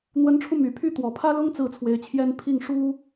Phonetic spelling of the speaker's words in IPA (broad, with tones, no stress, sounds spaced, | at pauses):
n̪ w ə˧˥ n ʈ͡ʂʰ u˧ m y˨˩ pʰ y˥ t̪ w ɔ˨˩ pʰ ä˥ l ʊ˥ ŋ t͡s ɹ̩˥˩ t͡sʰ w e˧˥ ɪ̯ t͡ɕʰ j ɛ˥ n pʰ i˥˩ ŋ ʂ u˥